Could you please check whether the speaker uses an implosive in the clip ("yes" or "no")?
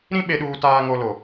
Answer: yes